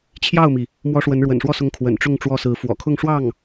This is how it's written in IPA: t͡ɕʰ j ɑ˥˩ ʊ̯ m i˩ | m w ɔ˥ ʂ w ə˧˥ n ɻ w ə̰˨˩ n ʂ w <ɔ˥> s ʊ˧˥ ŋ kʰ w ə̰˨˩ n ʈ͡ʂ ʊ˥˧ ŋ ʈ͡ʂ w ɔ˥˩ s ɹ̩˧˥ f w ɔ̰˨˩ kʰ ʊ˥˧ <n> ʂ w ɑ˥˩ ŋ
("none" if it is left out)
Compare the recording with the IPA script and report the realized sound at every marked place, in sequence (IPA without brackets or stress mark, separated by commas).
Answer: ɔ˥˩, ŋ